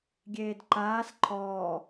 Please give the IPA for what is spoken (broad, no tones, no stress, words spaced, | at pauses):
ɡʲeːdǃaːs ǃʰɔː